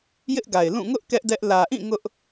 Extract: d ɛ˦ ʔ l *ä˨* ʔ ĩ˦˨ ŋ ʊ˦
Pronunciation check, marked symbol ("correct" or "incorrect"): correct